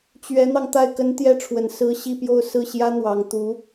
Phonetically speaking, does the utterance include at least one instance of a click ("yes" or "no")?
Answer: no